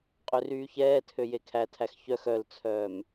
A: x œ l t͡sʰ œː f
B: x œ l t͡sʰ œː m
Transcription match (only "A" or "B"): B